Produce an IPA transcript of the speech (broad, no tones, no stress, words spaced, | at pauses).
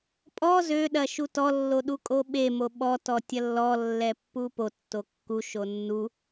pʼɔ zøɗɐ ʃutɔlːo ɗukʼoɓemo ɓɔtɔ tʲɐlːɔlːɛ pːupotːo kːuʃo nːu